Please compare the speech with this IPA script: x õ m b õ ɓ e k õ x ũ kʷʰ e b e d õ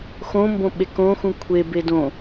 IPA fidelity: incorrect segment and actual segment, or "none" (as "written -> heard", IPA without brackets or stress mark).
none